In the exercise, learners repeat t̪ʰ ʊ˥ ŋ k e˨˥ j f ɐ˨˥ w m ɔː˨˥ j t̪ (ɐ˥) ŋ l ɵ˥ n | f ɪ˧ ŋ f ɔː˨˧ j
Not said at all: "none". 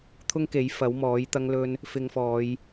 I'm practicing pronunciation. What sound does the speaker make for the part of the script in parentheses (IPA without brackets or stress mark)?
ɐ˥